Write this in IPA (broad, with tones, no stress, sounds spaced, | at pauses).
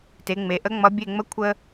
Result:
t e˩˧ ŋ͡m e˩˧ ʔ ə˧˥ ŋ͡m ʌ˧˥ bʲ e˥˧ ŋ͡m ə˥ kʷʰ ə˥